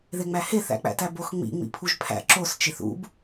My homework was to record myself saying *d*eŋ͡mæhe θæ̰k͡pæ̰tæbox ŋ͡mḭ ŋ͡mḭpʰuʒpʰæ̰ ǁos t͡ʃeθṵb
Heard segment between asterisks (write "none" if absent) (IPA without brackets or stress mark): ð